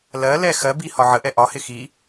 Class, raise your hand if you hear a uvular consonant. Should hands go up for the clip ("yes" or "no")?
no